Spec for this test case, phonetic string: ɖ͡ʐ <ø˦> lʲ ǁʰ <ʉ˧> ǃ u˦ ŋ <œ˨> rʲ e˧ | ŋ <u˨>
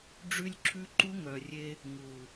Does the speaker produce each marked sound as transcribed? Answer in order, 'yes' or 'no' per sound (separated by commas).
no, no, yes, yes